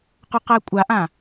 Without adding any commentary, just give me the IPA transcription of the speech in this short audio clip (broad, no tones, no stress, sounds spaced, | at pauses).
q ʊ q æ kʷʼ a ʔ ã